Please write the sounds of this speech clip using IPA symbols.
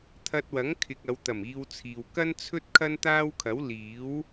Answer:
t̪ʰ ɐ˧ t̚ w ɐ˨˥ ŋ kʰ ɪ˨ k̚ ɐ˨˧ w t̪ ɐ˨˩ m iː˧ w t͡sʰ iː˨ w k ɐ˥ n t͡sʰ ɵ˥ t̚ kʰ ɐ˥ n t̪ aː˥ w kʰ ɐ˨˥ w l iː˨˥ w

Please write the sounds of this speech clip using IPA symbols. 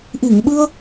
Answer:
ʔ i˧˩ ŋ ɓ ɨ˧ ə̯

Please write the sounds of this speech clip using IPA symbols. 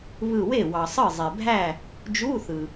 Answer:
β ɯ˧˩ w e˥˩ w ɑ˩ sˤ ɯ˥˩ zˤ e˩ bʱ æ˥˩ | d͡ʒ u˧˥˧ θ ɯ˩

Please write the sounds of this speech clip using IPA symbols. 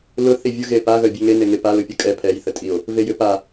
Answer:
l ʊ θ i vʲ u ɣ e p a ɣ œ bʲ ɛ ŋ e n e ŋ e p a l ʊ pʲ ʊ kʼ ɛ pʰ ɛ j θ ə tʼ i o̯ | v e j ʏ p a

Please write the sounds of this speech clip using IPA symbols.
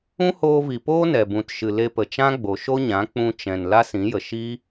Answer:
ũ˦ h oː˧ v i˨ p oː˦ n ɛ˨ b ũ˨ t ʃ ɨ˨ l e˧ p ə˨ t͡ʃ ã˦ ɡ͡b o˨ ʃ o˦ ɲ ã˨˦ k͡p ũ˧ t͡ʃ ɛ̃˨ n l a˦ s ĩ˨˦ j ə˨ ʃ i˦

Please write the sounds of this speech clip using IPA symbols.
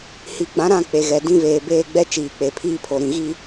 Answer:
h i˨ ɡ͡b ã˨˦ ɾ ã˦˨ k͡p e˨ ɣ ɛ˨ d ĩ˦ v eː˨ b eː˦ ɡ͡b ɛ˦ t͡ʃ iː˨ k͡p e˨ pʰ iː˦ pʰ o˨ ɾ ĩ˨ ɣ i˦

